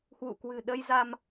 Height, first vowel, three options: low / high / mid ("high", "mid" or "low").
high